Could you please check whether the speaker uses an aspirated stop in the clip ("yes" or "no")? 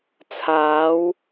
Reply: yes